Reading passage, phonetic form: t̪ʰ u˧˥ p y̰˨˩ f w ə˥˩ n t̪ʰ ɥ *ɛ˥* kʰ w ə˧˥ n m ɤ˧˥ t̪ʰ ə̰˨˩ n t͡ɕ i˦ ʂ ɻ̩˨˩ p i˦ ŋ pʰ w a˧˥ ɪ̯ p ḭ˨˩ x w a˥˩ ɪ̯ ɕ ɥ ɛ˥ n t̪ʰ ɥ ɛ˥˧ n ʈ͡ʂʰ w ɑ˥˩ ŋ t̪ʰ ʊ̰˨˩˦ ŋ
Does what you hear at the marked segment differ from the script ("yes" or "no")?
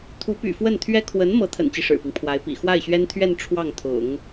no